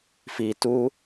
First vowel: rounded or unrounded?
unrounded